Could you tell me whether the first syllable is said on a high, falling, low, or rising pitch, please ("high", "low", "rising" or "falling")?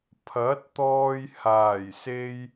rising